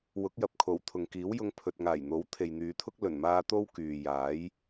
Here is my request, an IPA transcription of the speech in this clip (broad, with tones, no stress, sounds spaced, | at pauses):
w ʊ˨˥ k̚ j ɐ˨ p̚ kʰ o˨˩ w t̪ʰ ʊ˨ ŋ k iː˨˥ w j ʊ˧ ŋ pʰ ɵ˨ t̚ ŋ aː˨˩ j n̪ o˨˥ w t̪ʰ e˨ j n̪ yː˨˧ t̪ʰ ʊ˥ k̚ l ɵ˨˩ n m aː˧ t̪ o˥ w k yː˨ j aː˨˥ j